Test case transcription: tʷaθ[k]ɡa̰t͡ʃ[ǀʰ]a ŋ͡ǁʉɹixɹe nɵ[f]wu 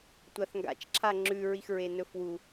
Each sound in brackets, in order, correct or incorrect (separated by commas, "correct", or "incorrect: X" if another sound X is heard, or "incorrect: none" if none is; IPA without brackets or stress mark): incorrect: ŋ, incorrect: ǁʰ, correct